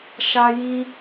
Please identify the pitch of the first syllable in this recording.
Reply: high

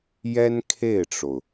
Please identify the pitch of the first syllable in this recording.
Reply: high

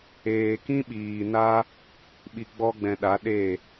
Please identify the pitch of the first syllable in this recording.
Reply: low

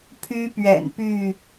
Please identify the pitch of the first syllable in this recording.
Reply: high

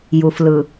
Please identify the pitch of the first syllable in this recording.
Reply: low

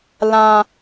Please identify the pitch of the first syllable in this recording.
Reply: low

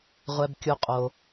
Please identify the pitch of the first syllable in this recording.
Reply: low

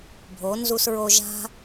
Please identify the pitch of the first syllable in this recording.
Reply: rising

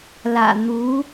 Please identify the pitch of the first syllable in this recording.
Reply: low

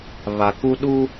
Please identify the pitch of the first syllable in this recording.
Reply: low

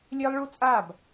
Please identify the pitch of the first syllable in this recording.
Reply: high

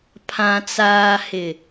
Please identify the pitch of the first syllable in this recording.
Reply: low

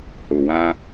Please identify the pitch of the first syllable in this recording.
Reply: low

